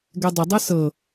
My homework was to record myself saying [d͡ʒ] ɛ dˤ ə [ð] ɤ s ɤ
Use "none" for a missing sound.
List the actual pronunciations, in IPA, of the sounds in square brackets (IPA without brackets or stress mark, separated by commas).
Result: ɡ, dˤ